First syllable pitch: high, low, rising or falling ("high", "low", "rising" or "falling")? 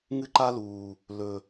high